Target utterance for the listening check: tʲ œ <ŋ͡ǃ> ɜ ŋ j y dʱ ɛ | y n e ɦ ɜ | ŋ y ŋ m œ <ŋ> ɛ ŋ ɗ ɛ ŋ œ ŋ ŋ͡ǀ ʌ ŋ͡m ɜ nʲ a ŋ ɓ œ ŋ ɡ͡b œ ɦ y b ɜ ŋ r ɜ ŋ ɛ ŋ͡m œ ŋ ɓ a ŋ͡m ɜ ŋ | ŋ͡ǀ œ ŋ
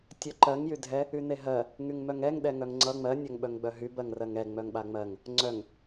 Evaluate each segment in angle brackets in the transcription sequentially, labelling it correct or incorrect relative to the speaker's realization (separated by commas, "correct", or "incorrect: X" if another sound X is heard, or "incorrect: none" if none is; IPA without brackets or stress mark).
incorrect: ǃ, correct